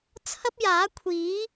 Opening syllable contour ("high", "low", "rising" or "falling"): high